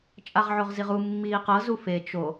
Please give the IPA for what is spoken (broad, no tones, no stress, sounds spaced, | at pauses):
t͡ʃʼ a ʁ ʕ o ʁ z i ʁ u mː iː q ɤ z u f e t͡ʃ o